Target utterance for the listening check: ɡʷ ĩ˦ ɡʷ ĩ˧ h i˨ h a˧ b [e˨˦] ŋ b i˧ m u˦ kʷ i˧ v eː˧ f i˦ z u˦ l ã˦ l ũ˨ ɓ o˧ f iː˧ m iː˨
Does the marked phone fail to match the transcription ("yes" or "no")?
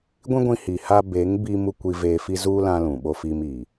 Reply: no